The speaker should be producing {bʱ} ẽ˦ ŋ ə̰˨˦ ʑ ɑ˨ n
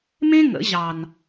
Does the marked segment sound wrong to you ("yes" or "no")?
yes